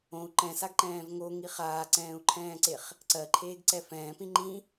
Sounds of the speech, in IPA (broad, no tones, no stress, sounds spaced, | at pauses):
õ u̯ ǃ ɛ̃ s a ɡ ǃ ɛ̃ː v ŋ o ŋ i χ aː ǀ ɛ̃ː u̯ ǃʰ ɛ̃ː ǀ e χ | ǀ ɜ ǃʰ eː ɡ ǀ ɛ f ɛ̃ː p ĩ ŋ͡ǃ ĩ